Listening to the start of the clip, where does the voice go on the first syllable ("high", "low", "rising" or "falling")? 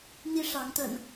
high